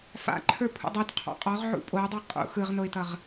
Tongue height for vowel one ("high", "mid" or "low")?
low